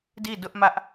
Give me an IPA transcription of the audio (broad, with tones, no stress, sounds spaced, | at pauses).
d i˦˨ d ʊ˦ ʔ m ä˦ ʔ